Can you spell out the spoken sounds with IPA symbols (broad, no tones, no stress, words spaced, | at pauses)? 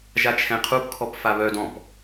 ʒat͡ʃʰɛ̃qʰupkʰɔp faβœdɔ̃p